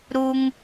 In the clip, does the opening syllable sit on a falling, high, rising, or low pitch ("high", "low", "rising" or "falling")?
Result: high